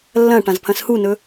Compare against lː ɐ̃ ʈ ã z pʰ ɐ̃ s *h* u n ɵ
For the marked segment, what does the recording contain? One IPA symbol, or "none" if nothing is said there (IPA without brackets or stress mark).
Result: h